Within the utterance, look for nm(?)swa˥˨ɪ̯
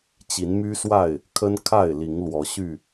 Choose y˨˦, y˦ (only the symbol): y˦